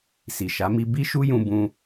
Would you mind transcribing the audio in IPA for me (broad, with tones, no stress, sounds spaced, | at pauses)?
s i˨ ʃ a˨˦ m i˦ b i˦ ʃ u˦ j ũ˧ b ũ˧